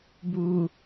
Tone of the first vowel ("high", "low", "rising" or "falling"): low